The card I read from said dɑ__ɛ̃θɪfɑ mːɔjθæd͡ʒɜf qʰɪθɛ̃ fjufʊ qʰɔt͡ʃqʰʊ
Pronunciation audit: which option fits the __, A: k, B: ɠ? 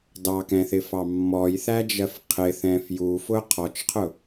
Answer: A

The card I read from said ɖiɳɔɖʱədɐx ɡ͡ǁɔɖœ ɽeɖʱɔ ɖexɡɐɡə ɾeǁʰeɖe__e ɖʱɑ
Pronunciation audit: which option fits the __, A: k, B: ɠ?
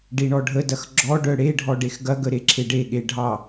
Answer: B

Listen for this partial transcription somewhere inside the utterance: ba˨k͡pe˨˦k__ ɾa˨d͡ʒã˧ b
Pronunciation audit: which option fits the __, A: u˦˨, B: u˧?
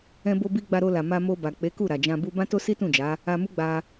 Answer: A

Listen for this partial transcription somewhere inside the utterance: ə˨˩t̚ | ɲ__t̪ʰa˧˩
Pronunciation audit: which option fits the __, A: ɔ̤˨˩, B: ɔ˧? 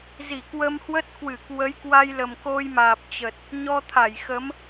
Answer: B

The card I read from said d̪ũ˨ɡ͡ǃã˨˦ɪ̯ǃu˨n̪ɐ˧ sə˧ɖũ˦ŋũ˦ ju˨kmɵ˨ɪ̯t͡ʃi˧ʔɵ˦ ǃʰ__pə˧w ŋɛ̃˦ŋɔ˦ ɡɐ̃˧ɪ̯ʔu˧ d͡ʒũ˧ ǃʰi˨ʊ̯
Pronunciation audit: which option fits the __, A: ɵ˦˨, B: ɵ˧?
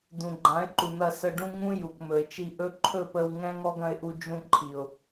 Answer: A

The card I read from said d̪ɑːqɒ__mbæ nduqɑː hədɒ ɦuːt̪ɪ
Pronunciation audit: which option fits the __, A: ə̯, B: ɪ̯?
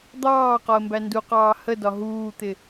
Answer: A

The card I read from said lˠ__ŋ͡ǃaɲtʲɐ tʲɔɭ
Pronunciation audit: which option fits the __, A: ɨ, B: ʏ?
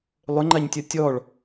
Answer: B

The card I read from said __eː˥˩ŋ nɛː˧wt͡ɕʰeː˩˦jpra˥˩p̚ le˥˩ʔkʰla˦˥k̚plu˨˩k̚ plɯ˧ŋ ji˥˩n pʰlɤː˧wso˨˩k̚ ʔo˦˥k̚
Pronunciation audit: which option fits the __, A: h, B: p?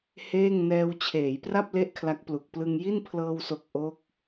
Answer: A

